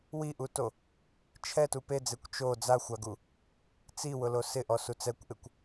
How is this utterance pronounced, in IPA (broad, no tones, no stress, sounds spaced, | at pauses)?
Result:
w i ʔ u t o | t͡ʃʰ ɛ t u p e d͡z e kʷ t͡ʃ o d͡z a xʷ a ɡ u | t͡s i w ʊ l o s ɪ ʔ ɔ s u t͡s ɛ kʷ ʔ ɪ kʷ